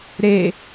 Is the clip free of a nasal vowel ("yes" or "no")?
yes